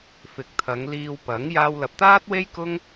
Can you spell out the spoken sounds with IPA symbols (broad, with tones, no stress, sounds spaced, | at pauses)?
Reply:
f ɪ˨˥ k̚ t̪ʰ ɐ˨˧ ŋ l iː˧ w p ɐ˨˥ ŋ j aː˧ w l ɐ˨ p̚ t̪ aː˥ t̚ w e˥ j k ʊ˥ ŋ